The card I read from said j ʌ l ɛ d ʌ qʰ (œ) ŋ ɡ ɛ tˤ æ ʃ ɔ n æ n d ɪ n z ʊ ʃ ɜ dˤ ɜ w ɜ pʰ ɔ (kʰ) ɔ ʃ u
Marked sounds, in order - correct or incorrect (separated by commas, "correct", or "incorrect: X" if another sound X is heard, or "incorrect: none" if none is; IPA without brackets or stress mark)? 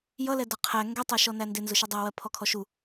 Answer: incorrect: æ, correct